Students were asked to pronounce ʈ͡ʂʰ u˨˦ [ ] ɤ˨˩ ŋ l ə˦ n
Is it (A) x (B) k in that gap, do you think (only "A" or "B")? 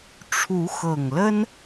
A